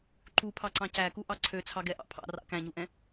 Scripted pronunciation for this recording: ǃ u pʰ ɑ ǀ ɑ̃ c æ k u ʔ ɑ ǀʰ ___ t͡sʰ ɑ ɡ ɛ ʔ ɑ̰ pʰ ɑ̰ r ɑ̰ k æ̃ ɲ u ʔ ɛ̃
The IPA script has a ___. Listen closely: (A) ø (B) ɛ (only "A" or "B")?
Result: A